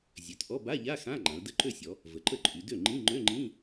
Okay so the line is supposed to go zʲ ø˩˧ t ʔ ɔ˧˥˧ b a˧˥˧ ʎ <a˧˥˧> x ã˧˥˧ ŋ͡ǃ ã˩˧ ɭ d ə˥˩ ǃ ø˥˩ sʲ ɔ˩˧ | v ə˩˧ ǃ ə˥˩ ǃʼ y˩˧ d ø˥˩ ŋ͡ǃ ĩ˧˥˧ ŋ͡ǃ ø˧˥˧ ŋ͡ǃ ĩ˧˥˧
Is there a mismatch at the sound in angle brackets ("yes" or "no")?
no